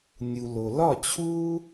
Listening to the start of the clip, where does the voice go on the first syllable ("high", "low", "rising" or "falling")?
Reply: low